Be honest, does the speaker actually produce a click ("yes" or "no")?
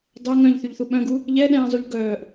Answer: no